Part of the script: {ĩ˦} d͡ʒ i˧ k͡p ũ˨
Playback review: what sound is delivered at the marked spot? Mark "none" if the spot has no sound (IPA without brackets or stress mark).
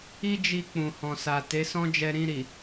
i˦